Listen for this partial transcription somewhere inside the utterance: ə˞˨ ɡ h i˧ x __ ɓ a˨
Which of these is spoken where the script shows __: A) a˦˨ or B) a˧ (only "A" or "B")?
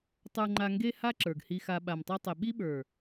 B